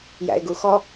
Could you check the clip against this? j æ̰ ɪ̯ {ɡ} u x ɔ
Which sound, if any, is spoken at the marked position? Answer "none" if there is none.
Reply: ɡ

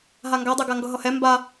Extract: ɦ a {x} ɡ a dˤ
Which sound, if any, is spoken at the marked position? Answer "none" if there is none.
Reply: ŋ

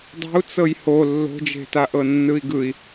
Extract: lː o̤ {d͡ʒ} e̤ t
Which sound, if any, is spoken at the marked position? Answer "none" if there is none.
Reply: d͡ʒ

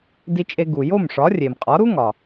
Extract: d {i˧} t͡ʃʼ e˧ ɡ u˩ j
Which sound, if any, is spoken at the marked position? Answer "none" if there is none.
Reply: i˧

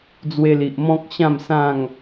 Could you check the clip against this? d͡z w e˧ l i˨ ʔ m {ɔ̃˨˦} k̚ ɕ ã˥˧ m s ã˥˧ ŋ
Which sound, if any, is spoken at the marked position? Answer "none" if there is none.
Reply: ɔ̃˦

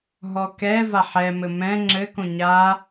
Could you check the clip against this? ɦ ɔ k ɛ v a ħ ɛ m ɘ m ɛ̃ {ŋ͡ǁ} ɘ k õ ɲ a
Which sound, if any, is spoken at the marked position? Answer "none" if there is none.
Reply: ŋ͡ǁ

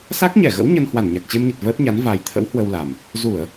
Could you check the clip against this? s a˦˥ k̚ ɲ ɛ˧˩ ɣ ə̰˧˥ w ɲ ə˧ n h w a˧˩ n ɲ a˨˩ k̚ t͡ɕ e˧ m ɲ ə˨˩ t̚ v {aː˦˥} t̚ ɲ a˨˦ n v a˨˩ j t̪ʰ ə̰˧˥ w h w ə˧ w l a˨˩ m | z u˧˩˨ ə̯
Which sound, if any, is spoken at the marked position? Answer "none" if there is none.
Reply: əː˦˥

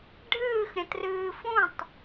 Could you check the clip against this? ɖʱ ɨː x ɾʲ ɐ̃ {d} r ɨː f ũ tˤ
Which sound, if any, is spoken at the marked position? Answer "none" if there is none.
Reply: t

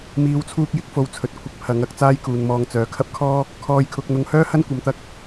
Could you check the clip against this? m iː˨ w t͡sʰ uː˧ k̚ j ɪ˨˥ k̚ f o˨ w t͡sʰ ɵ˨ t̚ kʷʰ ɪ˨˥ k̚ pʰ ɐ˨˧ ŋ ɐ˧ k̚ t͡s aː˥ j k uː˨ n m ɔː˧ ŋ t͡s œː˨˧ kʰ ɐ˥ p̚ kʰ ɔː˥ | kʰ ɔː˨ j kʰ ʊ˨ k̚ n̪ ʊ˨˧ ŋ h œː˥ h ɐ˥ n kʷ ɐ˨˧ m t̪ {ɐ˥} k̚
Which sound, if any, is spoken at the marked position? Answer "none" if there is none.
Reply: ɐ˥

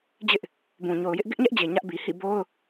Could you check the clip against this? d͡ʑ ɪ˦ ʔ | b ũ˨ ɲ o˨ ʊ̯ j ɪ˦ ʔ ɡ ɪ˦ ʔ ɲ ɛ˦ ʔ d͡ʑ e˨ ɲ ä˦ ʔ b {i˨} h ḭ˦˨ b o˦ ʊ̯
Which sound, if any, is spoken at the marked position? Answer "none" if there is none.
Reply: i˨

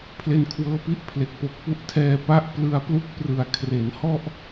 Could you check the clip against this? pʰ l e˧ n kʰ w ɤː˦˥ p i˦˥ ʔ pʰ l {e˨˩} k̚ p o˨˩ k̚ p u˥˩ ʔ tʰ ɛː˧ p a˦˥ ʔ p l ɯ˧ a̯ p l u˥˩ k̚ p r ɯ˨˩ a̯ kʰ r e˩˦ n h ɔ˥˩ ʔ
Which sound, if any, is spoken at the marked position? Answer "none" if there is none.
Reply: e˨˩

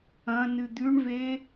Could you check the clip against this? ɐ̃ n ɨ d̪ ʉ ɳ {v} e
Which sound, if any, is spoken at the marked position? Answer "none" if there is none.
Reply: v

